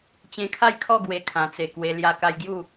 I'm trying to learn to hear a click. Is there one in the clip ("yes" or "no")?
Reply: no